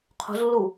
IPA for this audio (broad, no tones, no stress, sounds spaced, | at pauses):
qʰ o̤ z lː u